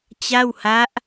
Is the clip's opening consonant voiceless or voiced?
voiceless